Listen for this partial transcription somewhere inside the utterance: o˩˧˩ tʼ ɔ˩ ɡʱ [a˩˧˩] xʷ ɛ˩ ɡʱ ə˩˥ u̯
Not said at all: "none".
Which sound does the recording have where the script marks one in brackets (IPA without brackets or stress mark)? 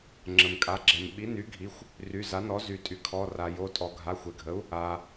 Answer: a˩˧˩